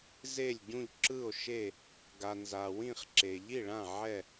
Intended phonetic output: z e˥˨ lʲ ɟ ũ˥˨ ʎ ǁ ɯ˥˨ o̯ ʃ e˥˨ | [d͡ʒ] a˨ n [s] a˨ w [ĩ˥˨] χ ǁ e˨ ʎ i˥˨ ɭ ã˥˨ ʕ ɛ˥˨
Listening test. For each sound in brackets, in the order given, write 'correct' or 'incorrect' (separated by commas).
incorrect, incorrect, correct